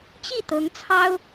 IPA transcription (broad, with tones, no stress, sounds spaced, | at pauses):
t͡ɕ i˥˩ t̪ ɤ˧˥ ŋ t͡sʰ ɑ˥ ʊ̯